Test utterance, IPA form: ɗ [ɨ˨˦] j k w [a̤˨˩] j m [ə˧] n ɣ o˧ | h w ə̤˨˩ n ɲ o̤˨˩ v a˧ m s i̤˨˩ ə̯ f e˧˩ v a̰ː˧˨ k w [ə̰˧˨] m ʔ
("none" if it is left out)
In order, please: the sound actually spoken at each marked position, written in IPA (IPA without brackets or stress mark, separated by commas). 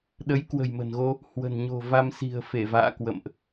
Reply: ə˨˦, ə̤˨˩, ə̤˨˩, ə̰˧˨